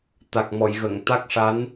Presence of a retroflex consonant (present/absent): present